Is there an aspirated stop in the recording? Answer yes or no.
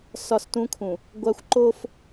yes